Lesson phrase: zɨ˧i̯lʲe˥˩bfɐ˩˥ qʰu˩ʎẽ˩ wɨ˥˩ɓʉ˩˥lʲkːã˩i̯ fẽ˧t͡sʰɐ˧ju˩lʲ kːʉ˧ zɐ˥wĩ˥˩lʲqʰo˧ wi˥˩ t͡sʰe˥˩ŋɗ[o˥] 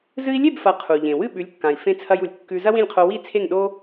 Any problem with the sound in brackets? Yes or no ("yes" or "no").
no